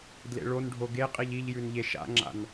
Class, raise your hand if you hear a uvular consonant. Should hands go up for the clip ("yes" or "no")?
yes